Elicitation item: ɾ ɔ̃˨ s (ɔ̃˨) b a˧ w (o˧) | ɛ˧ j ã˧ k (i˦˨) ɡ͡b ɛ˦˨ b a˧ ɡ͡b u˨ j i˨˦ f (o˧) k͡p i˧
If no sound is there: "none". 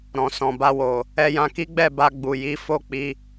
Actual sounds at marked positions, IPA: ɔ̃˨, o˨, i˦, o˦˨

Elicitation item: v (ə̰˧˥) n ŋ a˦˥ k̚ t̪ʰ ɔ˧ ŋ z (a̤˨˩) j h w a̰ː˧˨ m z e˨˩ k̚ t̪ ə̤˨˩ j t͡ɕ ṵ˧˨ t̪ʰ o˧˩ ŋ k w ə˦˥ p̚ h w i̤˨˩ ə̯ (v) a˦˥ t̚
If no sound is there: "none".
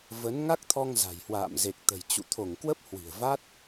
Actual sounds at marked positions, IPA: ə˨˦, a̤˨˩, v

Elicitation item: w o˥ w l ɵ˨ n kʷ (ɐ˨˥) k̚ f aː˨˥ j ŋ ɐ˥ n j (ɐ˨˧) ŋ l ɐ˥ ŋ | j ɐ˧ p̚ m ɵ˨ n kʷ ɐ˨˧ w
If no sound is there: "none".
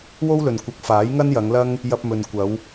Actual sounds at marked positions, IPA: ɐ˨˥, ɐ˨˧

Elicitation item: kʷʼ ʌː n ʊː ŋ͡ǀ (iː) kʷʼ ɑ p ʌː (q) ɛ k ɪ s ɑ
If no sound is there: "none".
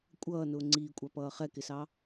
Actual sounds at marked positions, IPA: iː, χ

